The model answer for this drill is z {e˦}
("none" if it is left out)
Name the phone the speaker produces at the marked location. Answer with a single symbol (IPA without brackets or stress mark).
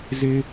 e˦